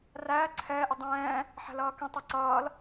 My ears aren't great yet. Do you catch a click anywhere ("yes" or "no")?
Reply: yes